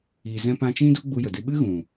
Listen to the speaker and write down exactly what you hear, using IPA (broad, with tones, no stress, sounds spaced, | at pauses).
i˨ z ɛ̃˧ p ã˧ t͡ʃ ĩ˦ d u˦ ɡ͡b u˧ j ə˨ d ɨ˧ ɓ ɨ˦ ɣ ũ˨